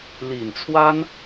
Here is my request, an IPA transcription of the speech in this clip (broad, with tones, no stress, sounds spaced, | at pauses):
l i˨˩ n t͡sʰ w a˥ n